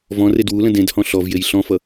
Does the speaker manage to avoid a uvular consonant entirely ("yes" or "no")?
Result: yes